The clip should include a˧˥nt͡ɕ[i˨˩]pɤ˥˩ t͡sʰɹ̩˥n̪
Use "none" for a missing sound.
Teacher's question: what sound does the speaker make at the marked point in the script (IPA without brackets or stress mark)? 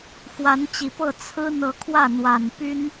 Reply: i˨˩